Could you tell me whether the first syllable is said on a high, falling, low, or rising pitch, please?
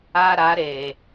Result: high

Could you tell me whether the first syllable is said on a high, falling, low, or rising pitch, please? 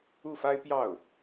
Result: falling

